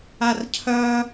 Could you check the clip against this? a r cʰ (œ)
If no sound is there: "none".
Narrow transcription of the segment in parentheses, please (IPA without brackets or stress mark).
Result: œ